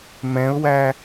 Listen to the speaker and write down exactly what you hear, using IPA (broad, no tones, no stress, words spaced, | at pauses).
mɛ̃ʊ̯wæ